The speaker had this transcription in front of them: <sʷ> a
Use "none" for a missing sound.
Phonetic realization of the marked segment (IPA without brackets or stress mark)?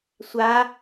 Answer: sʷ